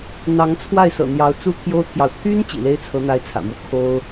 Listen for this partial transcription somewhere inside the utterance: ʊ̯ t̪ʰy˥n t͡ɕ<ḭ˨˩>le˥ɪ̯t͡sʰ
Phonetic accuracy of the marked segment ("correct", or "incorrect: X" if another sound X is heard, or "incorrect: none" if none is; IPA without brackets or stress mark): correct